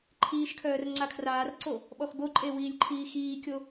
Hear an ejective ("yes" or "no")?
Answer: yes